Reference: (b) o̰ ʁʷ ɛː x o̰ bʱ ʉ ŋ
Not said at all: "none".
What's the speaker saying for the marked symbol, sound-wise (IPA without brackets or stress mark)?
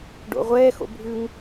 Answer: ɖ